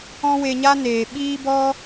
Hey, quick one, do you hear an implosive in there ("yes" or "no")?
yes